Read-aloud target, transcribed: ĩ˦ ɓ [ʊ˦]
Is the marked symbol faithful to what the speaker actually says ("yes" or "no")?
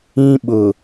no